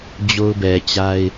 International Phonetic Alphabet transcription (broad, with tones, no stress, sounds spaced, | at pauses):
d͡ʑ o˦ ʊ̯ b ɛ˨ t͡ɕ a˦ ɪ̯